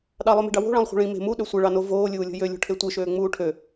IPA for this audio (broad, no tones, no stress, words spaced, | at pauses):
ɗɑlˠœme̤ɖɑ wo̤ɭɑ̃lˠχʷe̤ ɭĩ me̤ muɗø sʷɛɭɑno voːlʲuːlʲo̤ jølʲo̤ʈʰe tʷeʃøːŋ͡muː ʈʰø